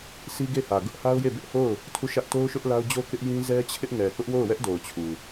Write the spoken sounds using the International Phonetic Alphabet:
s i˦ ɡ e˦˨ h ä˨ ɡ ʊ˦ ʔ h a˦ ʊ̯ j e˦˨ b ɪ˦ ʔ h o˦˨ ʊ̯ | tʰ u˦˨ ʃ ä˦ ʔ t o˦ ʊ̯ ʃ ʊ˦ ʔ l a˦ ʊ̯ d͡ʑ o˦ k ɪ˦ ʔ j ĩ˦ z ɛ˦ t͡ɕʰ ɪ˦ ʔ ŋ ɛ˨ k ʊ˦ ʔ w o˦˨ ʊ̯ w ɛ˦ ʔ d o˨ ʊ̯ t͡ɕʰ u˨

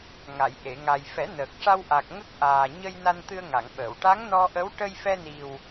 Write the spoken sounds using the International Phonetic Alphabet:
ŋ a˨˩˨ j ʔ e˨˩˨ ŋ a˨˩ j f ɛ˨˩˦ n əː˨˩ k̚ ʂ a˧ w ʔ a˨˩ k̚ ŋ ə˦˥ k̚ ʔ aː˨˩ ɲ ə˧ j n a˧ n t̪ ɨ˧ ə̯ ŋ a˨˩˨ ŋ ɓ əː˨˩˨ w ʈ a˧˥ ŋ n ɔ˧ ʔ ə˧˥ w ʈ ə˧ j f ɛ˧ n i˨˩ w

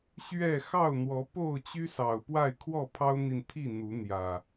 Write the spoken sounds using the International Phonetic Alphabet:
ɕ ɥ ɛ˥˨ x ɑ˥˨ ʊ̯ n̪ w ɔ˨˦ p o˥˨ ʊ̯ t͡ɕ y˦ s ɑ˨˩ ʊ̯ p w a˥˨ ɪ̯ kʰ w ɔ˥˨ pʰ ɑ˦ ʊ̯ n̪ i˨ n t̪ʰ i˥˨ n̪ u˨˦ n̪ j ä˨˩

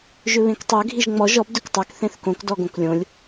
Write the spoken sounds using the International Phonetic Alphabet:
ʒ ʏ β ẽ k tˤ ø ɡʱ i ʒ ŋ͡m ɔ ʒ ɔ b d ʏ k tˤ ɜ k θ ẽ θ k õ k d ɔ ɡ õ k lʲ õ lʲ

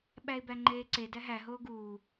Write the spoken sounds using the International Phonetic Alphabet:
ɓ æ ɪ̯ b æ ŋ͡ǃ eː ǀ e d æ ɦ æ ɦ oː ɡ uː

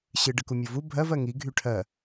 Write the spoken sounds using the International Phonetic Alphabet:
ɕ ɨ ɖ ɨ k u mʲ o v u bʱ ɜ v ɜ ŋ i ɡʱ y ʈʰ ɜ

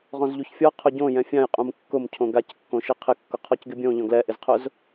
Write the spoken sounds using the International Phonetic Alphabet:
ʁ ɔ̃ z ʎ u ç fʲ ɔ qʰ ʊ ɟ õ j ɛ̃ fʲ ã j qʼ ũ m kː ʊ m cʰ õ ɡ a c kː õ ʃ i qʰ ɪ kː ʊ qʰ ɔ c ɡ ɪ bʲ õ ʎ ɔ̃ ɡ l ɛ ʔ ɪ z qʰ ʊ z

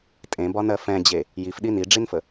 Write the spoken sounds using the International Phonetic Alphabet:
tʼ ẽ b ɒ n ɜ f ɛ̃ d͡ʑ e | j i f ɗ i n i ɖ͡ʐ i n f ə

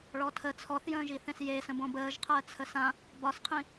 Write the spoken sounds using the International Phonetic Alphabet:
ɭ ɔ tʰ ə t͡sʰ ɔ θ j ə̃ː ʒ i θ ẽ s j e s ə̃ b õ b əː ʒ qʰ əː t͡sʰ ə s ã | b ɒ s qʰ ĩ

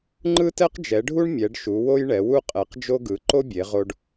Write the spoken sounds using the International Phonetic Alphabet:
ŋ͡ǃ ɯ˥ t ɛ˥ q d͡ʒ ɛ˨˦ ɖʱ u˥ ɳ mʲ ɛ˨˦ ɖ ʃ u˨˦ w o˥ j ɳ ɛ˨˦ w u˥ qʼ ɛ˨˦ q d͡ʒ o˥ ɡ ɯ˨˦ ǃ o˥ bʲ e˨˦ ʁ o˥ ɖ

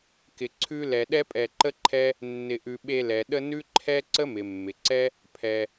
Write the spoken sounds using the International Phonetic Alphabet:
k ɪ˧ ǀʰ ʉ˦ l ɛ˧ ɗ ɛ˦ pʼ ɛ˧ ǃ ə˦ ǃʰ ɛ˦ | nː ɪ˧ ʔ ʉ˧ ɓ e˧ l ɛ˨ ɗ ə˦ n ʉ˦ ǃʰ ɛ˦ ǀ ə˦ m ɪ˨ mː ɪ˨ ǀ ɛ˦ | pʰ ɛ˧

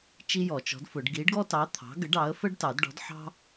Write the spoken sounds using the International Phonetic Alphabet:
t͡ʃ i˥ j ɔ˨˩˦ t͡ʃ ɔ̤˨˥ d f ʊ˨˩˦ ɖ ɡ i˨˥ ɖ ɡ ɔ˥ t ɑ˨˥ t̪ʰ ɑ̤˨˥ ɡ ə˨˥ ɖ ɑ˨˥ ə̯ f ə˥ ɖ t ɑ˨˩˦ d ɖ ɔ̤˨˥ d ħ ɑ̤˥

